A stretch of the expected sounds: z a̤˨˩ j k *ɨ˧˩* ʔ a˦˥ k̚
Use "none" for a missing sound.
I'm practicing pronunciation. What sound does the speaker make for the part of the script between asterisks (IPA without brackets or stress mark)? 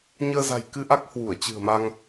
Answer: ɨ˧